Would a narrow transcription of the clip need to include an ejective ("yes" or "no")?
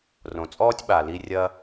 yes